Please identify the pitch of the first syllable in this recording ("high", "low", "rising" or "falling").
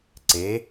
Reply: rising